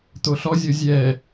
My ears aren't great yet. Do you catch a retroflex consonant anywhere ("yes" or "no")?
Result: no